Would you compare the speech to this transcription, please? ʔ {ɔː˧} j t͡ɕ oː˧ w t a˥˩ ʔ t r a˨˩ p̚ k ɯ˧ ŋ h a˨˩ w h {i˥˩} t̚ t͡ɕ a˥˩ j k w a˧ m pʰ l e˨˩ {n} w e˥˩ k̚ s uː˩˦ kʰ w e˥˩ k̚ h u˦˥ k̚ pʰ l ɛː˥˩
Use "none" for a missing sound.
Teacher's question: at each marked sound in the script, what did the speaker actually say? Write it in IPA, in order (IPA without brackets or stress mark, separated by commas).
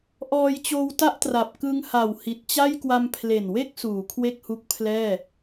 ɔː˧, i˨˩, n